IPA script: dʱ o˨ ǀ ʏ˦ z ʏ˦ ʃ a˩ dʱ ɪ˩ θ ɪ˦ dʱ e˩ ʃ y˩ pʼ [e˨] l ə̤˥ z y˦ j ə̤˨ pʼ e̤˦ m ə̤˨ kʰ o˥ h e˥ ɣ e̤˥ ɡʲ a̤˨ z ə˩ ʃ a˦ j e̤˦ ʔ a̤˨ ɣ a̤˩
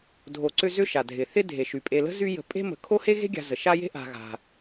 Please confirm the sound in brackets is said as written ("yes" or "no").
yes